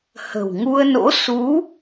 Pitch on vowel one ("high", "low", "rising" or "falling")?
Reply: low